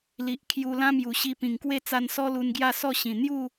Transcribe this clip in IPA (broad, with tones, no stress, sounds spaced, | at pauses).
l i˨ ʔ kʰ j u˧ l ã˦ m j u˨˩ ɕ i˧ p ĩ˨˩ ŋ k w e˥˧ t͡s a˧ n s ɔ˦ l u˧ n ɡ j a˥˧ s ɔ˥˧ ɕ ĩ˨˩ n̪ j u˥˧